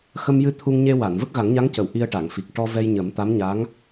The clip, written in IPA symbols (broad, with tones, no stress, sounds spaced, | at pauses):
x ə˧ m j ɨ˧ t̪ʰ u˧ ŋ ɲ e˧ w a˨˩˨ n v ə˦˥ k̚ ɣ a˨˩˦ ŋ ɲ a˧˥ ŋ c ə˨˩˨ w ʔ i˧ ə̯ ʈ a˨˩˨ ŋ f i˨˩ k̚ ʈ ɔ˧ v ɛ˧ j ɲ ə˨˩˦ m t̪ a˧˥ m ɲ a˧˥ ŋ